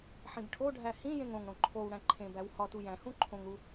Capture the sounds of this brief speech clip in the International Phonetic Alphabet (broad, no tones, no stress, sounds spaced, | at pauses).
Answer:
ħ ĩ b ʈʰ o ɖʱ æ h ĩ j ẽ ŋ õ ŋ ɽ õ ǃʰ o w ɽ æ̃ ǃʰ ẽ b æ w h ɒ t u j æ̃ h ũ ǃʰ õ ŋ ɾ u